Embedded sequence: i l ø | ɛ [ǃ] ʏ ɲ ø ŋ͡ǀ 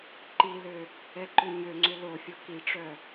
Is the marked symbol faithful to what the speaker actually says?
yes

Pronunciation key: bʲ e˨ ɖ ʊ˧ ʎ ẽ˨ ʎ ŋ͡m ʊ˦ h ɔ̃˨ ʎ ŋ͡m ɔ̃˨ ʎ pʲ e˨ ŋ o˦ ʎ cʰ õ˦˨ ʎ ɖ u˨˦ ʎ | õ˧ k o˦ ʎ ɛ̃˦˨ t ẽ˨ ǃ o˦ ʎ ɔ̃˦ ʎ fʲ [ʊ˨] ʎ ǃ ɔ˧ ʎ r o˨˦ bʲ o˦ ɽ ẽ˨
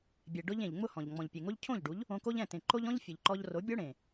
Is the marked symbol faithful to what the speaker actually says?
yes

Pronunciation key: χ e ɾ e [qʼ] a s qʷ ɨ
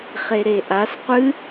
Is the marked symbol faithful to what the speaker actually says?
no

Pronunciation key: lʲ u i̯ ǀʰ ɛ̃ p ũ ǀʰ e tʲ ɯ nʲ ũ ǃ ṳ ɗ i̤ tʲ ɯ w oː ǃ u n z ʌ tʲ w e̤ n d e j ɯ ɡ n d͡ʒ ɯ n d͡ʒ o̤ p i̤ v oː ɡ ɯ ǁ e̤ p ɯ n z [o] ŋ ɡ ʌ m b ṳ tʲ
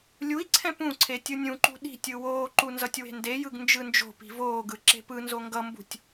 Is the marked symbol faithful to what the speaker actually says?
yes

